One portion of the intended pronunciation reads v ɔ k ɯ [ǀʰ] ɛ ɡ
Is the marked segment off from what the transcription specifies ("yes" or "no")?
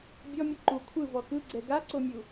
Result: yes